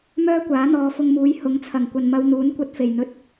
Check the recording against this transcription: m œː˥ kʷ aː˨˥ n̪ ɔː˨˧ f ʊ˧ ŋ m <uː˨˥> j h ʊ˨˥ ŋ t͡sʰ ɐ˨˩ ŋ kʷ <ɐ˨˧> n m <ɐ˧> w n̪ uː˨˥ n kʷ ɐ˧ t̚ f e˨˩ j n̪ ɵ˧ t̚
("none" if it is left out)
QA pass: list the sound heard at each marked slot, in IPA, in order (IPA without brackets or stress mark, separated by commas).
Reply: uː˨˥, ɐ˨, ɐ˧